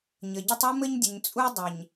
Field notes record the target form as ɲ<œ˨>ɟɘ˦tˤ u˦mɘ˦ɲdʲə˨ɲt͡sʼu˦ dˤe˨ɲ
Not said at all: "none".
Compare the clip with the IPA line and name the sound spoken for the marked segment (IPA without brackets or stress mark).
ə˨